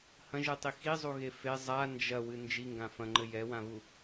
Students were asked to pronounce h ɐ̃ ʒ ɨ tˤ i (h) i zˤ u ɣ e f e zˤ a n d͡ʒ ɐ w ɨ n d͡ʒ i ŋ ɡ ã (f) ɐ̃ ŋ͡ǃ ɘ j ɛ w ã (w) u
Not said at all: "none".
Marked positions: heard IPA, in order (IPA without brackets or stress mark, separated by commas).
x, f, β